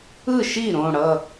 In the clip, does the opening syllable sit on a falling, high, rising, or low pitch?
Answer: falling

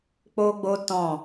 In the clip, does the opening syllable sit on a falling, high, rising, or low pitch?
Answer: high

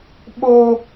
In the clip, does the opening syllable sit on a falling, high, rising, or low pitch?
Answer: high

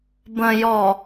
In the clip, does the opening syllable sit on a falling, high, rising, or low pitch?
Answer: low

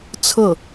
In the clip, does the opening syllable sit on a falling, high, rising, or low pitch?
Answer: falling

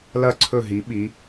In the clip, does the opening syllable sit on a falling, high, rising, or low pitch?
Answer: falling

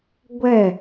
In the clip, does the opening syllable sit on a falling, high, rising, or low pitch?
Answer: falling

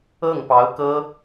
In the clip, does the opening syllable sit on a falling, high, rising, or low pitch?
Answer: falling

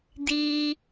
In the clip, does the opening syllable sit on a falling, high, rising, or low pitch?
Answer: low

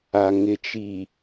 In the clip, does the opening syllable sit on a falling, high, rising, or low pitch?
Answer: low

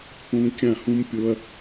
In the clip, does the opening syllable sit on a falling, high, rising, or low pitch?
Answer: high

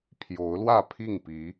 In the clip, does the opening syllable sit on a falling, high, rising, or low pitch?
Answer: rising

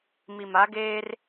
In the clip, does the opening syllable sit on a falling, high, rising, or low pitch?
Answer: low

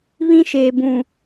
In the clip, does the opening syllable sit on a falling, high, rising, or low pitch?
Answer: high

